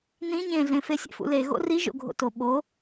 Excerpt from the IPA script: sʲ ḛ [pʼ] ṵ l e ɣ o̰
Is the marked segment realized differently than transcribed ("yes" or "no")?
yes